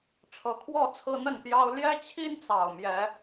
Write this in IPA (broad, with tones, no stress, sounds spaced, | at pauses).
ʈ͡ʂʰ ɤ˨˩ kʰ w ɔ˥˨ t͡sʰ ɹ̩˦ n̪ ə˥˨ n p j ɑ˦ ʊ̯ l j ɛ˦ t͡ɕʰ i˦ n t͡s ɑ˨˩ ʊ̯ m j ɛ˨˦